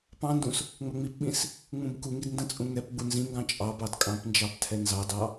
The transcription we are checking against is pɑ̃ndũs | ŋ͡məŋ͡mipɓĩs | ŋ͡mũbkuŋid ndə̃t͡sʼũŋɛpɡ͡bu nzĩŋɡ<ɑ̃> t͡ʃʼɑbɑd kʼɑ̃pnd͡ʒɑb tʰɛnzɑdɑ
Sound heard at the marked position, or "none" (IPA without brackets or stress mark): ɑ̃